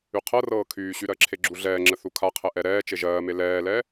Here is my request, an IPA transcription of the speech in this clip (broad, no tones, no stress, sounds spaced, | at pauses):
y qʰ ɤ r ɤː kʰ yː ɕ y ɾ ɜ ǁʰ e ɡ͡ǁ u ɮ ɛː ŋ͡ǁ ə θ u kʰ a qʰ ɛ ʔ ɛ ɾ ɛː t͡ʃ e ʒ ɜː m e l ɛː l ɛ